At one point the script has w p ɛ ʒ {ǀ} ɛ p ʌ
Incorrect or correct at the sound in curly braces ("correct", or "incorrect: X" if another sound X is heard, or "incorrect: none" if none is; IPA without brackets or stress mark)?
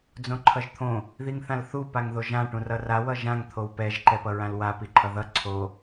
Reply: incorrect: ǃ